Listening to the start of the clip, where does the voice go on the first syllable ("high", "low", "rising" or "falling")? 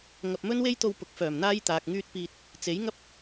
low